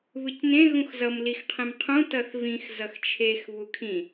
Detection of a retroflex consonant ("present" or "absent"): absent